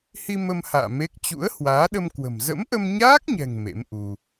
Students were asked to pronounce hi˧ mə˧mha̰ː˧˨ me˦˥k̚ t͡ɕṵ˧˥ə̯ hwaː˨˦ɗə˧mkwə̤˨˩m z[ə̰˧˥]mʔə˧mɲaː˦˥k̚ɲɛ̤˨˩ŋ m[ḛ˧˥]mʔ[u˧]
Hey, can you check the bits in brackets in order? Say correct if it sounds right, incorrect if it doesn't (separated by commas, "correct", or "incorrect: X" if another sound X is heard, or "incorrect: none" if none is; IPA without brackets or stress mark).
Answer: correct, correct, correct